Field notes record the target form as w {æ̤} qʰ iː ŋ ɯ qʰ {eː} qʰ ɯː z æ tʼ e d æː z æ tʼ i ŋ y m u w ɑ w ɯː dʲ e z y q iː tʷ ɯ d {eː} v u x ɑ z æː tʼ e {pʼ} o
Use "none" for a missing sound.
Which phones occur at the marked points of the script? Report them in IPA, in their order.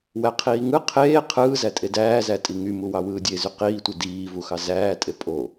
æ, eː, iː, pʼ

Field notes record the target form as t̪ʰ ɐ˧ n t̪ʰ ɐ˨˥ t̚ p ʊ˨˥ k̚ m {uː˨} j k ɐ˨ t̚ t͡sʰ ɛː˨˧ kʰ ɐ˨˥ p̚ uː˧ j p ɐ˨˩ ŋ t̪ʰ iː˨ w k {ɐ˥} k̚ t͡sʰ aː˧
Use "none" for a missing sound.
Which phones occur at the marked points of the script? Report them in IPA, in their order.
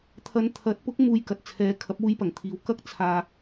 uː˨, ɐ˥

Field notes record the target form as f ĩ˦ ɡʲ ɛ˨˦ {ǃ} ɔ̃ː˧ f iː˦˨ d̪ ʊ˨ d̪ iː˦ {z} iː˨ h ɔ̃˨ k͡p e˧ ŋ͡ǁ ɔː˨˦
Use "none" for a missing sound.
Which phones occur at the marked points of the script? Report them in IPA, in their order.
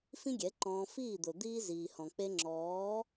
ǃ, z

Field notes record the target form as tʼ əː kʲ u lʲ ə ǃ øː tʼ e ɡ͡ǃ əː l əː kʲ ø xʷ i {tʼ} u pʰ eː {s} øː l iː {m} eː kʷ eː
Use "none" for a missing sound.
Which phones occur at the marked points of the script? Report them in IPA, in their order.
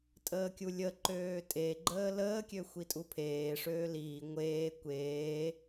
tʼ, ʂ, ŋʷ

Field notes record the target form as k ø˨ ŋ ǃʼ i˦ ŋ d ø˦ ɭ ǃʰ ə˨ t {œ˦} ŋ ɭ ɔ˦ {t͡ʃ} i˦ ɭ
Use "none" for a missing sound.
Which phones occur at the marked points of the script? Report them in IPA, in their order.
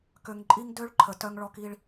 œ˦, k

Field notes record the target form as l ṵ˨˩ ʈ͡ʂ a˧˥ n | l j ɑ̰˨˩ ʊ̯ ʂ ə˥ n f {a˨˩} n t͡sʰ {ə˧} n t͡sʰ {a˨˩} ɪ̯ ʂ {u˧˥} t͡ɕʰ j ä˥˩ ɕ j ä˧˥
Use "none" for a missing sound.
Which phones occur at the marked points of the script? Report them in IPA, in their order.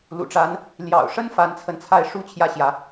a˧˥, ə˧, a˥˩, u˥

